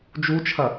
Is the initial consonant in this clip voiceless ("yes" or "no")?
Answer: no